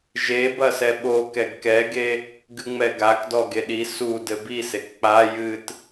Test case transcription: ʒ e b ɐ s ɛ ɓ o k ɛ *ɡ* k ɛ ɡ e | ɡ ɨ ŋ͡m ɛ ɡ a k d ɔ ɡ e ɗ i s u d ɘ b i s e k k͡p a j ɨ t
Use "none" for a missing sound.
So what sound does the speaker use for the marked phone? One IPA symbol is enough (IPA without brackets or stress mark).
ɡ